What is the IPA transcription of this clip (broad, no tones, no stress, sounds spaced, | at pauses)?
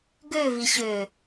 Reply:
ɡ ø v i ɕ ø